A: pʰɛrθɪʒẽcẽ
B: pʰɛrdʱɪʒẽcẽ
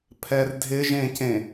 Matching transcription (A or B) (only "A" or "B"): B